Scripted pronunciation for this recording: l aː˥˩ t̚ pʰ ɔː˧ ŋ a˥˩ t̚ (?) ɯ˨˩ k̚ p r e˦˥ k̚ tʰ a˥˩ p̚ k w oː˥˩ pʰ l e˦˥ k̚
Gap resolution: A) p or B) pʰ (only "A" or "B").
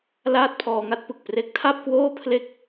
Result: A